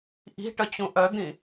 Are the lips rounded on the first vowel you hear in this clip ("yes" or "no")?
no